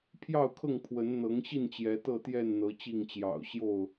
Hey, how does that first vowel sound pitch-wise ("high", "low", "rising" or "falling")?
falling